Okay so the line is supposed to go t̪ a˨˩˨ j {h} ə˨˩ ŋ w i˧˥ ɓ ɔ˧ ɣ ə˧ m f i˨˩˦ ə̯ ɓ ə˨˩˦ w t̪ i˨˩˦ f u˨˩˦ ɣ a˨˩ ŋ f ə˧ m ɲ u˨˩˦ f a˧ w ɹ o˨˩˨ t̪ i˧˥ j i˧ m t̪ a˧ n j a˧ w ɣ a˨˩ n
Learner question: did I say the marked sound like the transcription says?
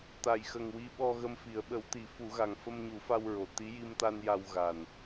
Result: no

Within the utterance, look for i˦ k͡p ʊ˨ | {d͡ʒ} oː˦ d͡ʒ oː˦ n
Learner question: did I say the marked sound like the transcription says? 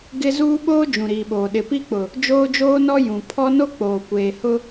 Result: yes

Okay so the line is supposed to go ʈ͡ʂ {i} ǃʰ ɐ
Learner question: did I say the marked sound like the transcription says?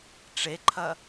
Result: no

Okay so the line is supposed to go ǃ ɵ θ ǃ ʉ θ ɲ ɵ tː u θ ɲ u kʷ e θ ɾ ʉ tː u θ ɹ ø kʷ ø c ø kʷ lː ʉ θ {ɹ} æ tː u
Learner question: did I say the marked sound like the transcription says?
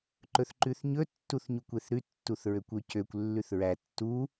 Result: yes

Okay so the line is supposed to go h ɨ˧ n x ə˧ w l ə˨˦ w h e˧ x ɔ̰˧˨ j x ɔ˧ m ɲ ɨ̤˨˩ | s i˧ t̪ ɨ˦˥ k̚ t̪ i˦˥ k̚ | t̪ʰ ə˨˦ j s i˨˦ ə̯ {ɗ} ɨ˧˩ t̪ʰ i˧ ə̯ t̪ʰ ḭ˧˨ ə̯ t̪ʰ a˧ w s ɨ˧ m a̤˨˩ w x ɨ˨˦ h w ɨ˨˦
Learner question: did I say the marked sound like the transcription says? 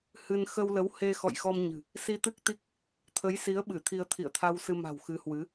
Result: no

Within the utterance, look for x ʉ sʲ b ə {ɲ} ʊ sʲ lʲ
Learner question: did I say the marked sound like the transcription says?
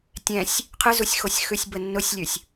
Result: no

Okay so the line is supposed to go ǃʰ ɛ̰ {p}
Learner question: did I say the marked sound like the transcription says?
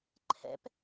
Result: yes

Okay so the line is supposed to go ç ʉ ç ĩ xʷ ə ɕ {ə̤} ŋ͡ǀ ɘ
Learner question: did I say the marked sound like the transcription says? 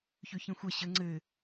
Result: no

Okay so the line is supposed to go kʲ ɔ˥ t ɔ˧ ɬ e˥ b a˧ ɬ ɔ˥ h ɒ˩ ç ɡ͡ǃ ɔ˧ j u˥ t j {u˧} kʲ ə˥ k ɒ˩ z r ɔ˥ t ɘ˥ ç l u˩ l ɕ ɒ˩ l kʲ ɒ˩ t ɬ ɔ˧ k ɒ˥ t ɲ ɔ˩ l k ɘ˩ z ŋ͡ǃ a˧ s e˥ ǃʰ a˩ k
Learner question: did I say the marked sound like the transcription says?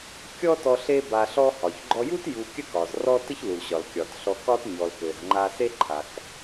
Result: yes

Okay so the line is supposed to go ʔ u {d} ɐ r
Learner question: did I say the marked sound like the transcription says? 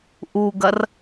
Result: no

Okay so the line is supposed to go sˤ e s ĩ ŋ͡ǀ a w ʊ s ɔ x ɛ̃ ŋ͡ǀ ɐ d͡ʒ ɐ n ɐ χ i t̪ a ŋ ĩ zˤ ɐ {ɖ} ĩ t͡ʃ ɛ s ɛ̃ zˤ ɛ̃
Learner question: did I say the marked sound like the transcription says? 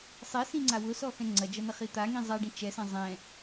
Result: yes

